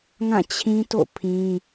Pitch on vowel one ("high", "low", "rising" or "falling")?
falling